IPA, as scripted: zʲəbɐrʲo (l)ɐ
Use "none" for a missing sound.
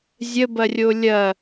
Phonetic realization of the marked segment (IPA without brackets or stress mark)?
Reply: lʲ